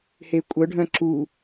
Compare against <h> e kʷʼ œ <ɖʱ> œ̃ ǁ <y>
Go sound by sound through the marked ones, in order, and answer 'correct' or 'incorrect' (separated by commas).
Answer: correct, correct, incorrect